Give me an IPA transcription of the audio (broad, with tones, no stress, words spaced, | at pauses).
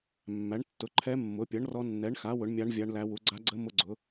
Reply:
mːæ˩˥ɳtːʊ˩˥ ǃʰɛ˧˥mːʊ˩˥pʲʌ˩˥ɳ rɔ˧˥ nːɛ˩˥ɳxa˩˥ wʊ˩˥ɳmʲa˧˥ɳ vʲa˧˥ɳlæ˧˥wu˩˥ ɡ͡ǀa˧˥ɡ͡ǀə˧˥ mʊ˧˥ɡ͡ǀʊ˩˥